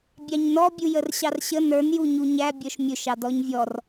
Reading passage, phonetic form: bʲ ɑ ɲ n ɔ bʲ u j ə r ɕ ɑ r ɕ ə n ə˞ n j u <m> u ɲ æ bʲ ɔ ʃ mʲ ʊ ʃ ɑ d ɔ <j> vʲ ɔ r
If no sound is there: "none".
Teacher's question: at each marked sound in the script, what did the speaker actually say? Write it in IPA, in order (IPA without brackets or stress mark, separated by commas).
ɲ, ɲ